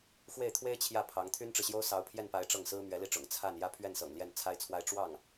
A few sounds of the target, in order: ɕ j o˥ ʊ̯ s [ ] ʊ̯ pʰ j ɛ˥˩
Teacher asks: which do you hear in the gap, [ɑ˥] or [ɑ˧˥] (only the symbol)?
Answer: ɑ˧˥